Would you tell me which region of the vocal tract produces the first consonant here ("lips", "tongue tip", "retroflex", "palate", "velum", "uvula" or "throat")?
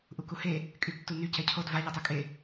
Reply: throat